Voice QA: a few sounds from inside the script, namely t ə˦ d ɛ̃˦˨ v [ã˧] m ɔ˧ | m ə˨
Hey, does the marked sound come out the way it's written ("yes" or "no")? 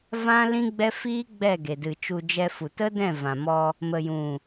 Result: no